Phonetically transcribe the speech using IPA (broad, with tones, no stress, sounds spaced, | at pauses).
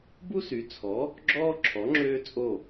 b u˥ s y˩˥ t͡sʰ ɔ˩˥ | ɡ͡ǁ ɔː˥ ǁʰ ɔ˩˥ ŋ͡ǁ øː˥ t͡sʼ o˥˩